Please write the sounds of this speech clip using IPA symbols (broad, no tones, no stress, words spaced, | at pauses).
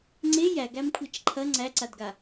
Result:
ŋ͡ǀe jæɡæmkʷʰet͡ʃ ǃʰɐ ŋ͡ǀæǀadɡa